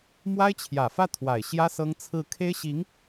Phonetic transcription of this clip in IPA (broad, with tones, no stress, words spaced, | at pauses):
mwa˥ɪ̯t͡ɕʰjä˨˩fä˥˩ t̪ʰwa˨˩ɪ̯ɕjä˥ sɤ˥ŋt͡sʰɹ̩˥˩ kʰe˥ɪ̯ɕi˧˥ŋ